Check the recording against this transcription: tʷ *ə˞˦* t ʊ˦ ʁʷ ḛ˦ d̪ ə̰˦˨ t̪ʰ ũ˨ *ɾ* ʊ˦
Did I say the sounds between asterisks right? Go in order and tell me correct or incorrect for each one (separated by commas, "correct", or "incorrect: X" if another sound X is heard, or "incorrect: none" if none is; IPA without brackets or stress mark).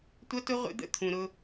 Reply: incorrect: ʌ˦, correct